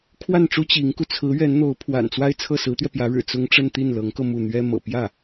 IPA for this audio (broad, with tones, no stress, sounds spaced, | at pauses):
kʰ w a˥˩ n ʈ͡ʂ u˥ t͡ɕ i˧˥ ŋ k u˧ t͡sʰ ɹ̩˧˥ ɥ ɛ˧˥ n n̪ o˧˥ ʊ̯ pʰ w a̰˨˩ n t͡s w a˥˧ ɪ̯ t͡sʰ ɤ˥˩ s ɹ̩˧˥ t̪ ɥ ɛ˧ p j ä˧˥ ɻ ɻ̩˨˩ t͡s ʊ˥ ŋ ʈ͡ʂ ə˥˧ n t̪ i˥˩ n l ɤ˧˥ ŋ k ɤ˧ m u˥˩ n̪ ɥ ɛ˥ m ɤ̰˨˩ p j ä˥˩